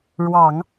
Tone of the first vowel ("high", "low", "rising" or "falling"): low